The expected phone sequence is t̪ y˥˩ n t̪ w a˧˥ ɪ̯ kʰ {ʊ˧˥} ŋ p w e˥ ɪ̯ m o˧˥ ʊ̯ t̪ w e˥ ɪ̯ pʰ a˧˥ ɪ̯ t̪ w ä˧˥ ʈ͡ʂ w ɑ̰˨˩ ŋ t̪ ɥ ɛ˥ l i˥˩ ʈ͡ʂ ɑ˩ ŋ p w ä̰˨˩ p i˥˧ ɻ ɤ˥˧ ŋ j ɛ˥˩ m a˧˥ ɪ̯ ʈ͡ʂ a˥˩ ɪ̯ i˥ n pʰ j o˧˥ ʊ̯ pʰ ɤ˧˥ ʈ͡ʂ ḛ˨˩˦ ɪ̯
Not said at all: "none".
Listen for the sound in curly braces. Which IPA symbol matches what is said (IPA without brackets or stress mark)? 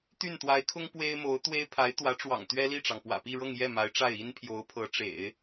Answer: ʊ˥